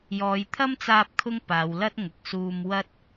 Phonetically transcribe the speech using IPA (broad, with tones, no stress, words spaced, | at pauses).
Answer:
jɔː˨˧jt̪ʰɐ˥mt͡saː˧p̚ kʰʊ˥ŋpaː˨˧wlɐ˥t̚ŋʊ˨˥k̚ suː˧mwɐ˥t̚